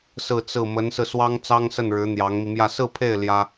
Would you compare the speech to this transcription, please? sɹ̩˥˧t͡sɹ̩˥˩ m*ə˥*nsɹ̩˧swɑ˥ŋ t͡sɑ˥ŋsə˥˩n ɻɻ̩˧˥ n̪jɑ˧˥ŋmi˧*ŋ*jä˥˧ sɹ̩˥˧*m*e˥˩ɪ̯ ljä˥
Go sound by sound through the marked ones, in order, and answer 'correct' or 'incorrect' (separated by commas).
incorrect, incorrect, incorrect